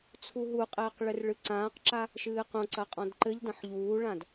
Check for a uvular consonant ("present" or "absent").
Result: present